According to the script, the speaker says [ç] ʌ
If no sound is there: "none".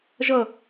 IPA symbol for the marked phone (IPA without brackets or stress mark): ʒ